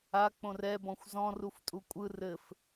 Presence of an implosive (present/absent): absent